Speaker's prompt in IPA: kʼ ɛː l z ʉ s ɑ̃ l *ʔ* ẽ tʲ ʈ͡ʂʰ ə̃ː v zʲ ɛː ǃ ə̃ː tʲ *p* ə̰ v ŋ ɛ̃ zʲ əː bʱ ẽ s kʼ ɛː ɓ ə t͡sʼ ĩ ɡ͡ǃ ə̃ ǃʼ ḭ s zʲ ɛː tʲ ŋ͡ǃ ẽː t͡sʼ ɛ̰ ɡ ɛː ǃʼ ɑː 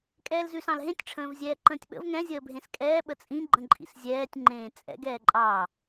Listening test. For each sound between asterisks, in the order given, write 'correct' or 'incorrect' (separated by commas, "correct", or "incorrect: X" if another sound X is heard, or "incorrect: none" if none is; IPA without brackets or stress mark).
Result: incorrect: ɦ, incorrect: ɓ